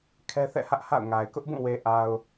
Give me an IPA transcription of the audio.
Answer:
kʰ ɛ˦ θ ɛ̰˦˨ h ä˦ ʔ h a̰˦˨ ʊ̯ ŋ a˨ ɪ̯ k ʊ˦ ʔ b ũ˦˨ w e˨ ʔ a˨ ʊ̯

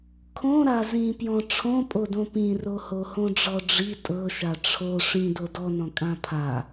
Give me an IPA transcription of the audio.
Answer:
kʰ õ ɾ a z ĩ p j ɔ̃ ʈ͡ʂʰ õ pʼ o d õ p ĩ r o h o h õ ɖ͡ʐ ɔ ɖ͡ʐ i tʼ ɤ ʃ a ʈ͡ʂʰ o ʂ ĩ d o d ɔ n ɔ̃ kʼ ã pʰ a

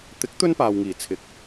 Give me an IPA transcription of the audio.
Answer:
t̪ ɪ˨˥ k̚ t̪ ɵ˥ n p aː˨ w ŋ iː˨˩ t͡sʰ ɪ˨˥ k̚

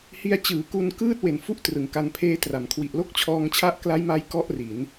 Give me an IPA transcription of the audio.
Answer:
h i˧ a̯ t͡ɕ ɯː˩˦ k u˧ n k ɯː˥˩ t̚ w e˩˦ n f u˥˩ ʔ t r ɯ˩˦ ŋ k a˧ n pʰ eː˦˥ t r a˨˩ m kʰ w i˨˩ ʔ l o˥˩ k̚ t͡ɕʰ ɔː˧ ŋ t͡ɕʰ a˦˥ ʔ k l a˦˥ j m a˦˥ j k ɔ˥˩ ʔ r i˩˦ n

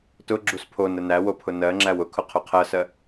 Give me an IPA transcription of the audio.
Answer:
t ʊ ɡ͡ǁ u s pʰ o n ə n æ w o pʰ ʊ n ɜ ŋ͡ǁ æ w ʊ kʰ ʊ qʰ o qʰ ɜ s ɜ

